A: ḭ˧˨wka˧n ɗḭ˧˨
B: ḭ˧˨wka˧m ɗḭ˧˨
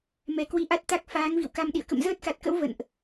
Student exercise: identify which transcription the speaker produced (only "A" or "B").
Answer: B